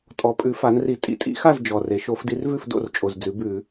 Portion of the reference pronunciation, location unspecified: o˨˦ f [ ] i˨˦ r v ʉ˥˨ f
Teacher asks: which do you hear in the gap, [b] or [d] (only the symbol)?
d